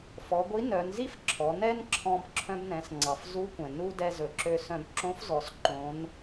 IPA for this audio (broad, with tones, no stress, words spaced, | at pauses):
fɔ˩˧ɡʷi˧˥nœ˩˧nzi˥f ǁʰɔ˩˧nɛ˥nǁʰɔ̃˧b ǁʰœ̃˧bnɛ̃˩˧sŋ͡ǀɑ˩f zu˧˥ kʷɛ̃˩ nu˧ dɛ˧zɵ˩˧ǁø˧sœ̃˧b ǁõ˧˥fzɔ˩sǃõ˩˧n